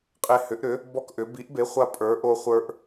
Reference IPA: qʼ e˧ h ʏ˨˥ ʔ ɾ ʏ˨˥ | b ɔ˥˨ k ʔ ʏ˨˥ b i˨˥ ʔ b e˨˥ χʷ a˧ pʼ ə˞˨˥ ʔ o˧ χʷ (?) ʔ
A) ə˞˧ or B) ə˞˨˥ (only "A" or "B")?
A